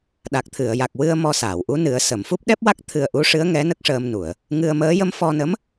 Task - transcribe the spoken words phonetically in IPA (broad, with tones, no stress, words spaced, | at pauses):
ɗa˨˩k̚t̪ʰɨ˨˩˨ə̯ja˨˩k̚ wɨ˧ə̯ mɔ˧saː˨˩˨wʔu˧˥ nɨ˨˩˦ə̯sə˨˩˨mfu˦˥p̚ ɗɛ˦˥p̚wa˦˥k̚ t̪ʰɨ˧ə̯ʔu˧˥ʂɨ˧˥ə̯ŋɛ˧˥ nə˦˥k̚ʂəː˧m nu˨˩˨ə̯ | ŋɨ˧ə̯məː˧˥ jə˧mfɔ˧nə˧˥m